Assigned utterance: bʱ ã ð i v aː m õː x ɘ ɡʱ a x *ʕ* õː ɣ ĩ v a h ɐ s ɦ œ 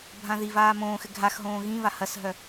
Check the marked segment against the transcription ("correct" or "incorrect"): incorrect